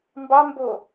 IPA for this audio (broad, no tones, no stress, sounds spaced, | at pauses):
m b ɑ m b o